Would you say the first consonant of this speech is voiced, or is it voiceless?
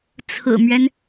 voiceless